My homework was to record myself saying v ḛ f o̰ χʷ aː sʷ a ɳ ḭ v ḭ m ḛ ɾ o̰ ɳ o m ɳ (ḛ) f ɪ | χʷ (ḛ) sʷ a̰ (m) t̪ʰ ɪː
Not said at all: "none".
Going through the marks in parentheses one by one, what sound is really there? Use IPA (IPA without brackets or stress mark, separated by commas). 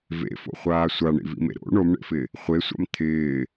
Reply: ḛ, e, m